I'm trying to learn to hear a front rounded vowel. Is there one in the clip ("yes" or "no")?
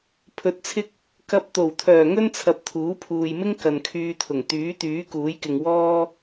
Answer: yes